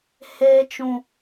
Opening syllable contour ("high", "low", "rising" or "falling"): high